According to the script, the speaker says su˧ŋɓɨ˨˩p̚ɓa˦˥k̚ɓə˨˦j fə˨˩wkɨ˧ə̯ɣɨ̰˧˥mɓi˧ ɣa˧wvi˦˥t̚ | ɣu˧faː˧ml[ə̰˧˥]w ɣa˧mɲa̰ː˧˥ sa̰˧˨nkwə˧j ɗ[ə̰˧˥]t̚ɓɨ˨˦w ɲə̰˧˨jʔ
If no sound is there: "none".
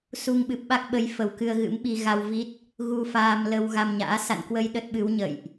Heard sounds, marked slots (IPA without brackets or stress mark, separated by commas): ə˧, ə˦˥